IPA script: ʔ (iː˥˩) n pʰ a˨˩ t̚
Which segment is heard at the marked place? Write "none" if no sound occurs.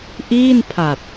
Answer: iː˥˩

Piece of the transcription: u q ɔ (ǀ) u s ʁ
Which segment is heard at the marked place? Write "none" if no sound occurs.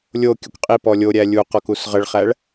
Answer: k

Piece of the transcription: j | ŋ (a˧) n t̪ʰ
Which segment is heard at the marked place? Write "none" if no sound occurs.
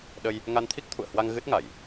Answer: a˧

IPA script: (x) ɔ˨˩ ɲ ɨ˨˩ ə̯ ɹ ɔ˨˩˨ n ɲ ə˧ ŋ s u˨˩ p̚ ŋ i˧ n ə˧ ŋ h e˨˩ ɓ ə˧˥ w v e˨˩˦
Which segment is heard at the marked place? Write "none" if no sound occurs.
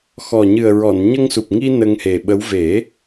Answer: x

